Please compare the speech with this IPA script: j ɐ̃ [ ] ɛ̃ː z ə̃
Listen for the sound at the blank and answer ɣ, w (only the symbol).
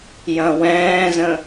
w